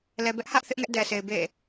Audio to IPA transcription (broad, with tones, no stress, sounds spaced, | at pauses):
l ɛ˨ b ɛ˦ ʔ h ä˦ ʔ θ ɪ˦ ʔ ŋ ɛ˦ ʔ d ɛ˨ s e˨ ɪ̯ b ḛ˦˨